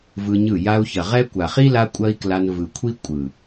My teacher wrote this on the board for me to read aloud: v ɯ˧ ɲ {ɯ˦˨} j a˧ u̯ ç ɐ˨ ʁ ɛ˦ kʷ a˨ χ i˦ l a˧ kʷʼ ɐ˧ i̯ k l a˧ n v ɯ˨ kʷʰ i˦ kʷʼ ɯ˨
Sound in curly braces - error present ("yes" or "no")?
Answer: no